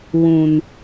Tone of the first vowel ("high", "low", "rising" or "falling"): low